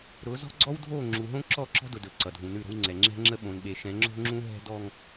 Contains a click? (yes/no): yes